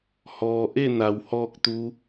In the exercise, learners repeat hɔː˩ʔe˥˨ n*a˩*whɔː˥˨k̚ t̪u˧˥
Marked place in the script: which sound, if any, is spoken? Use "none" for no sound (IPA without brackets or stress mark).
a˩